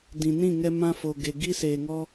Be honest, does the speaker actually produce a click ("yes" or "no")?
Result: no